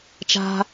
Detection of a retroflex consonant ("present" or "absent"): absent